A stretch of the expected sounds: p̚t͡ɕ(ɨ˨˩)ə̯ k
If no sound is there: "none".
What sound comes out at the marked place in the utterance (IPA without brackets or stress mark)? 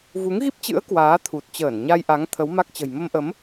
ɨ̰˧˥